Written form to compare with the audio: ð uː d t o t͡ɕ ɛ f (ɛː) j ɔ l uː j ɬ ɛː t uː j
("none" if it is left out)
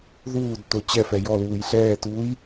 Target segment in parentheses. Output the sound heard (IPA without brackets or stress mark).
ɛ